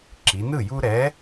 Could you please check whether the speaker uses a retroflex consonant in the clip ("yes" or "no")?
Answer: no